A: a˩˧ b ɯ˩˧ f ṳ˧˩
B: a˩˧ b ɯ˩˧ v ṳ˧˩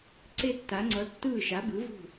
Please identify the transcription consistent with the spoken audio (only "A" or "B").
B